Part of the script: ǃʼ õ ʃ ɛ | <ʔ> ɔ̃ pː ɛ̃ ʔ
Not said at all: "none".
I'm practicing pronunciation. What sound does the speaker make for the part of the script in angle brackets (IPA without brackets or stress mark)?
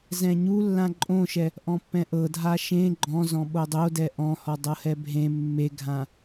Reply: ʔ